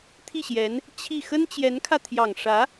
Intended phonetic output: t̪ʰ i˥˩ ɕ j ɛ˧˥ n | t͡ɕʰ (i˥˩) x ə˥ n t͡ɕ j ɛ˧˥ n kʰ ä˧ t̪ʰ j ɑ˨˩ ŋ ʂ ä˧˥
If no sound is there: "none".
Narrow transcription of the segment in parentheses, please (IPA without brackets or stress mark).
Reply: i˥˩